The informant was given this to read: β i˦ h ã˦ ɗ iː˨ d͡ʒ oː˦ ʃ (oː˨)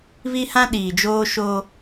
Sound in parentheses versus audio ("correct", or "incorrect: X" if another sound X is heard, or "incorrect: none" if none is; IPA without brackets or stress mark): incorrect: oː˦